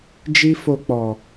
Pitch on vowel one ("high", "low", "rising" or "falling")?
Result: high